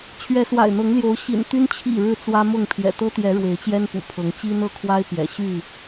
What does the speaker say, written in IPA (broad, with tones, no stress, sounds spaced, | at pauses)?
t͡ɕʰ ɥ ɛ˨˦ s w a̰˨˩ ɪ̯ n̪ ɤ˨˦ ŋ l j o˨˦ ʊ̯ ɕ ḭ˨˩ n t̪ y˦ n t͡ɕʰ ḭ˨˩ ɻ ɻ̩˨˦ t͡s w ä˦ m ʊ˥˨ ŋ pʰ j ɛ̰˨˩ t̪ ɤ˦ t̪ j ɛ˨˦ ɻ w e˨˦ ɪ̯ t͡ɕ j ɛ˦ n p ṵ˨˩ pʰ ɤ˨˦ ŋ t͡ɕ i˦ n̪ ɤ˥˨ kʰ w a˦ ɪ̯ p j ɛ̰˨˩ ɕ y˥˨